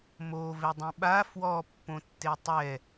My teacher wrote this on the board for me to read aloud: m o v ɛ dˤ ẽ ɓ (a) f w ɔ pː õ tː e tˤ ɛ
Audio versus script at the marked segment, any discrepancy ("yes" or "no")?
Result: no